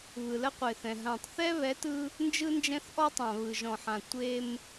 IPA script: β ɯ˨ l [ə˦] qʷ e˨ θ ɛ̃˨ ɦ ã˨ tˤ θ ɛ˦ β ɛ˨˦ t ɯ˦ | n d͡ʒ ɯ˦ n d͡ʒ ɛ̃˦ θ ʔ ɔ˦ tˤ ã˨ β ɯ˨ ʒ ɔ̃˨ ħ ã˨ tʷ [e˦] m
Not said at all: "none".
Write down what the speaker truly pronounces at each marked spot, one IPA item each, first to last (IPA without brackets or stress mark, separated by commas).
ə˦, e˦